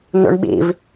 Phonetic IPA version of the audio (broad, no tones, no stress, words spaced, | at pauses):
nṵɳɓḭv